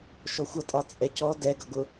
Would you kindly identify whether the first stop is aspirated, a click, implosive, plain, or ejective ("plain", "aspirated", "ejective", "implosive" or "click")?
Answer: ejective